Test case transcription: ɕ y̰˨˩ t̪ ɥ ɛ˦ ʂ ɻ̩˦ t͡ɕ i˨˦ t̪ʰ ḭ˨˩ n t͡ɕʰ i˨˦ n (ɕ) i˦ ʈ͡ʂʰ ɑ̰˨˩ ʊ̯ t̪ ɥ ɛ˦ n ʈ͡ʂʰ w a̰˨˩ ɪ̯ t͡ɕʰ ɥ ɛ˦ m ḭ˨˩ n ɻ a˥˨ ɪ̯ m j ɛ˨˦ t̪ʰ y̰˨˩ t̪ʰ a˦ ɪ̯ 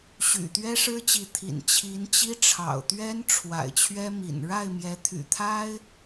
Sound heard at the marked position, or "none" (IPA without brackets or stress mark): t͡ɕ